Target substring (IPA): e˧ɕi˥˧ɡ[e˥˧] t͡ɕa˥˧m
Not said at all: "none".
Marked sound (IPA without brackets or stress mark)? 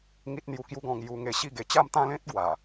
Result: e˨˩